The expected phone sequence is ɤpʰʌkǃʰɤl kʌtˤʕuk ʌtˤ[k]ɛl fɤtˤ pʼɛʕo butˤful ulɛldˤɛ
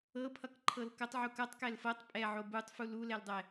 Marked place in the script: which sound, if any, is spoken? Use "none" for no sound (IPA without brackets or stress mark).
k